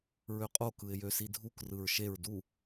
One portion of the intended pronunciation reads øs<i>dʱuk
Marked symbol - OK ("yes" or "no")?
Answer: yes